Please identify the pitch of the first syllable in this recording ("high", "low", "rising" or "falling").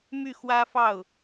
falling